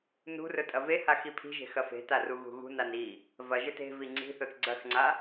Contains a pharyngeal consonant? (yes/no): no